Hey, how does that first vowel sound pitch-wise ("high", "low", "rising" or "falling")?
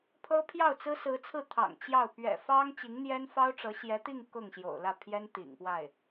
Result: high